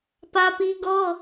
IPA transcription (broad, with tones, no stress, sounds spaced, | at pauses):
p ä˦ p i˦ ɡ ɔ˦